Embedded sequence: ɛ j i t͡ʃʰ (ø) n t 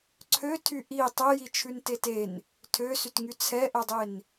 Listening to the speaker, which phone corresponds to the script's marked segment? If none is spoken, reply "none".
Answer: ʉ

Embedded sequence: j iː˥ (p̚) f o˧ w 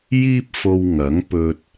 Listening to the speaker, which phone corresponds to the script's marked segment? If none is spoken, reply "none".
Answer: p̚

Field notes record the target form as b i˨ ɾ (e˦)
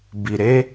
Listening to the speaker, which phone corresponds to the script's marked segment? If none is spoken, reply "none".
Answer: e˦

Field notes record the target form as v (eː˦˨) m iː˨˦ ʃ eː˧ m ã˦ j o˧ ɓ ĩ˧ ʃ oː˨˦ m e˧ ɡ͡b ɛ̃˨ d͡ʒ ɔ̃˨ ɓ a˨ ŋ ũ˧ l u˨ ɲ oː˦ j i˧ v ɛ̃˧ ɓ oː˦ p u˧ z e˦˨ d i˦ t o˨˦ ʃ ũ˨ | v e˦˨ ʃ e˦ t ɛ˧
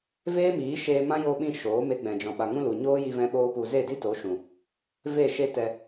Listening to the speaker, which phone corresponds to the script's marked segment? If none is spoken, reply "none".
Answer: eː˦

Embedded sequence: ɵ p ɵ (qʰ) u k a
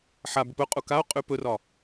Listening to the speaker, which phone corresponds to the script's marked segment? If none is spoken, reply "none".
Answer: qʼ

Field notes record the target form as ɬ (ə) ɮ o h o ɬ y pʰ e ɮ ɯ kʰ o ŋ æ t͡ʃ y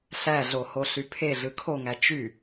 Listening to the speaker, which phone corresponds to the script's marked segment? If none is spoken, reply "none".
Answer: æ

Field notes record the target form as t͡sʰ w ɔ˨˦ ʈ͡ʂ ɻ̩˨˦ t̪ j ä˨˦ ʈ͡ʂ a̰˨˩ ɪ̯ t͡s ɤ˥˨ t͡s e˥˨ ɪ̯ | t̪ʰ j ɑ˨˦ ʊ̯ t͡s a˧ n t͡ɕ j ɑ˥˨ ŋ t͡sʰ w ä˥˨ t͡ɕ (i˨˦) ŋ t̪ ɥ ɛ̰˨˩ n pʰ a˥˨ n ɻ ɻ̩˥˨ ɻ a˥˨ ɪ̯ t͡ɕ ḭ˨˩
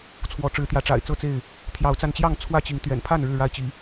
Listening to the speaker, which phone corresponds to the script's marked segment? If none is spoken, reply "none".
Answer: i˨˦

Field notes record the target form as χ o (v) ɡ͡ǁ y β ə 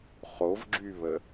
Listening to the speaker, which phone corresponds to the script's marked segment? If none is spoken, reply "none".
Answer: v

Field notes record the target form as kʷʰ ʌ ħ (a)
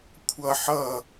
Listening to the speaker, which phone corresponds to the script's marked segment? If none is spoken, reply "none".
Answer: ʌ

